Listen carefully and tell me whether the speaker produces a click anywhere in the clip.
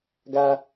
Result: no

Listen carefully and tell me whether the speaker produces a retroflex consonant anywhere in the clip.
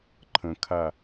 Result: no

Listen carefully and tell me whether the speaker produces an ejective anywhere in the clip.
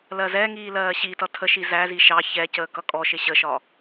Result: yes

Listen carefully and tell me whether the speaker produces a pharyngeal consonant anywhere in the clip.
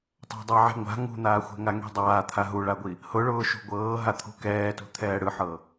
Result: yes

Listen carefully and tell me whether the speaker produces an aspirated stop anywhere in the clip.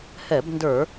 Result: no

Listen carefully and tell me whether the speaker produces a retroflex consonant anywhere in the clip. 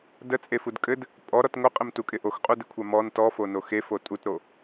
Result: no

